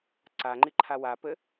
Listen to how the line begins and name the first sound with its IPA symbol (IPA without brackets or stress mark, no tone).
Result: ǀ